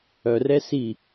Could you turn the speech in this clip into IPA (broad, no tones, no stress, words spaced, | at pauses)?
œrɛ si